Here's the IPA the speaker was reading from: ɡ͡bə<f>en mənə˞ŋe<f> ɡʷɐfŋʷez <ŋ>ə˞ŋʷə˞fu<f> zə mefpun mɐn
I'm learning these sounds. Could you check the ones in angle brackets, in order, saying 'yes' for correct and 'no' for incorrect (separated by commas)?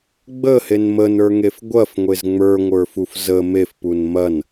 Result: no, yes, no, yes